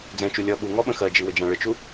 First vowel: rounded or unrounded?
unrounded